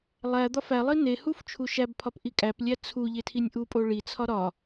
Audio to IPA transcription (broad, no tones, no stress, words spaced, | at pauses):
lˠæ d̪ɒfælˠi nehuf t͡ʃʰuʃæbpʰɒp ʔikʼæplʲæ t͡sʰu ʎetʰinʲʔupʼo ɭit͡sʰɒ ɾɒ